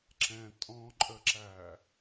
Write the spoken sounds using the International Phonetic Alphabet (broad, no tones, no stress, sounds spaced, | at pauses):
ǁ ɛ̃ tʼ ɔ̃ ǃʼ ə ǁ æ